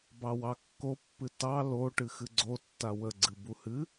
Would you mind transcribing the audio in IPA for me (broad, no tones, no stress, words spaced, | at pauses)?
bɑwɑkːopːɨ tɑ lo ʈɨxɨɡ͡ǀotːa wəɡ͡ǀɨ buhɨ